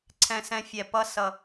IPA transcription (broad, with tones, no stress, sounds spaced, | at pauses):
ǀʰ ɛ̃˧ s ɛ̃˧ fʲ ɛ˨ p ʌ˧ s ʌ˨